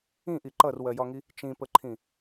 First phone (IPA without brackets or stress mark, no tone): ĩ